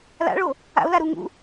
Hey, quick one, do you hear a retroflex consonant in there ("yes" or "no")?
yes